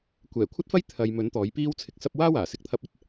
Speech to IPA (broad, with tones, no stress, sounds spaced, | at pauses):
kʷ ɛː˨˩ kʷʰ ɐ˥ t̚ f ɐ˥ j t̪ʰ ɐ˨ j m ɵ˨˥ n t̪ ɔː˨˥ j p iː˥ w t͡sʰ ɪ˧ k̚ s ɐ˥ p̚ w aː˥ w aː˨˩ s ɪ˨ k̚ t̪ʰ ɐ˧ p̚ ɐ˥ t̚